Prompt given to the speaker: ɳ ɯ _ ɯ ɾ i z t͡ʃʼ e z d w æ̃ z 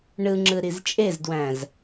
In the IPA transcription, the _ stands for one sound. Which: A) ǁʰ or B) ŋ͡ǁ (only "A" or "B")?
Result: B